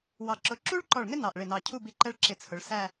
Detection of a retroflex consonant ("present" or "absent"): present